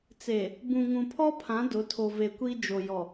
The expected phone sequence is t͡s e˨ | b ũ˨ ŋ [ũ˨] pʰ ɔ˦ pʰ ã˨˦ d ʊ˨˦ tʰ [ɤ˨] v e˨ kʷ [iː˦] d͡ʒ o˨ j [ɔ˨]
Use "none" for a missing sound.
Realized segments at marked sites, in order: ũ˨, o˨, i˦, ɔ˨

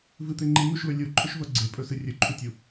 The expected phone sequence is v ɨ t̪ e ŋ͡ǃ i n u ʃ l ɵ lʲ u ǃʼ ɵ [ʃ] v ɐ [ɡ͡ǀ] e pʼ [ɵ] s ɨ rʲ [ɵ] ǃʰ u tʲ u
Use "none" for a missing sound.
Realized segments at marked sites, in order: ʃ, ɡ͡ǀ, ɵ, ɵ

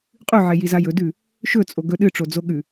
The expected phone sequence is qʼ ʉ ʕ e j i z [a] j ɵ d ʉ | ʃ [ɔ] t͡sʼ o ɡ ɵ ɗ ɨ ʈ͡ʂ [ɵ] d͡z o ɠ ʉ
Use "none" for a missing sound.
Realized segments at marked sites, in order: a, ɵ, o

